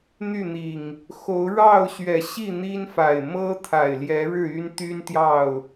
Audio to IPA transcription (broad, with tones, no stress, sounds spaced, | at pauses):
n̪ y˥˨ n̪ i˨˩ ŋ | x o˨˦ ʊ̯ ɻ ɑ˥˨ ʊ̯ ɕ ɥ ɛ˨˩ ɕ i˥˨ n̪ i˦ n f a˨˩ ɪ̯ m ɤ˦ t̪ʰ a˨˩ ɪ̯ l j ɛ˨˦ ɻ ɻ̩˥˨ y˦ n t̪ y˦ n t̪ j ɑ˥˨ ʊ̯